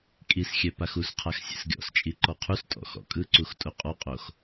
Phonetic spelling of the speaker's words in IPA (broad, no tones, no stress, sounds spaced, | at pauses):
kʼ i s xʲ ɛ p a x u s qʰ a x sʲ ḛ s ɡʲ ɔ̰ s t͡ʃʼ i ǃ ɔ qʰ u s tʼ ɔ̰ x ɔ̰ kʼ ɯ ǀ u x tʼ o qʼ ɔ qʼ o x